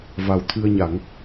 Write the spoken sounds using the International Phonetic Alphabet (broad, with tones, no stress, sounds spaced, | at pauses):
v a˨˩ w t̪ʰ ɨ˧ ə̯ ɲ a˨˩˦ ŋ